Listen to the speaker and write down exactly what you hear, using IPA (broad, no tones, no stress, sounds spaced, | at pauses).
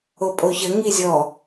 o pʼ o ç ə ŋ i zʲ ɔ